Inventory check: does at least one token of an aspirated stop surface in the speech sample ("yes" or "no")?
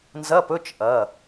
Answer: no